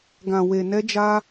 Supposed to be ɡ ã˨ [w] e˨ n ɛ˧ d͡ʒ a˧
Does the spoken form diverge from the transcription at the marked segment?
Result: no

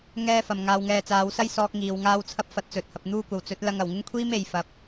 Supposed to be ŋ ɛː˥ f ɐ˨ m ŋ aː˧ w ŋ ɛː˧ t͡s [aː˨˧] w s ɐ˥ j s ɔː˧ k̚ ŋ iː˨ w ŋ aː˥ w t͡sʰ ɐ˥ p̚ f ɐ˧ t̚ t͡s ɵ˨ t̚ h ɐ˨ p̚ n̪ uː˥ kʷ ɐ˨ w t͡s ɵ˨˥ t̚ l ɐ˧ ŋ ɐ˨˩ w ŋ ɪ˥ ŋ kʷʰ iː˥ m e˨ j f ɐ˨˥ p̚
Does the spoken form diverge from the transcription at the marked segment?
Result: no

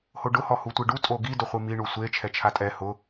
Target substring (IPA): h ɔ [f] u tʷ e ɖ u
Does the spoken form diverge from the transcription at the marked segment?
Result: yes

